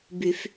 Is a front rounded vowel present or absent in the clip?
present